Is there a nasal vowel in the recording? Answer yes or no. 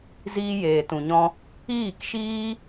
yes